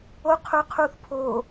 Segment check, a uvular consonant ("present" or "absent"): present